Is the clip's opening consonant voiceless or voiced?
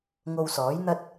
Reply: voiced